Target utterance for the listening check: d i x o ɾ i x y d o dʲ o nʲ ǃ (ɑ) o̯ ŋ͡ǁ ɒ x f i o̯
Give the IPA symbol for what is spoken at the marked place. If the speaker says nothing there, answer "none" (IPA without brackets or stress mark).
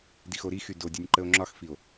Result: ə